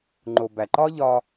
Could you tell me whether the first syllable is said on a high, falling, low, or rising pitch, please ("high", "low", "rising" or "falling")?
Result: low